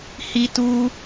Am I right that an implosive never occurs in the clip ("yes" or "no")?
yes